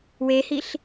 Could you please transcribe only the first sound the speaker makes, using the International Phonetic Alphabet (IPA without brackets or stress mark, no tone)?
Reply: w